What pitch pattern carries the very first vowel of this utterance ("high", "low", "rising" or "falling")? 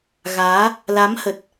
rising